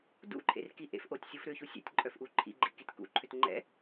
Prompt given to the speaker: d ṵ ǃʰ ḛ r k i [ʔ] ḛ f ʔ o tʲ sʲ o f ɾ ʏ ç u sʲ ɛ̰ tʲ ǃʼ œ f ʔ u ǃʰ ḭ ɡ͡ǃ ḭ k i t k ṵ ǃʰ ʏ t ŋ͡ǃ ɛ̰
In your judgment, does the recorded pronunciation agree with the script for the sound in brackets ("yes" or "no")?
yes